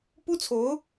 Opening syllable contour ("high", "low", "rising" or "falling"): high